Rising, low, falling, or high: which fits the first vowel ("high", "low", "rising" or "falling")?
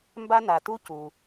high